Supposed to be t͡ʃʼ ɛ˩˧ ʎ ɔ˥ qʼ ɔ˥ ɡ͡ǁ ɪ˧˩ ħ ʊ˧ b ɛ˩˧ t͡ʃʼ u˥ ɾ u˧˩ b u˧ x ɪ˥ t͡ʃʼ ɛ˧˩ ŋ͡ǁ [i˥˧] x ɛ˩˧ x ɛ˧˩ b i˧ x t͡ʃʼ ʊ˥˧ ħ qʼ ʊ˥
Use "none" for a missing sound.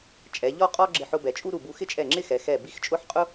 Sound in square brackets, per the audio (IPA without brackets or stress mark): ɪ˥˧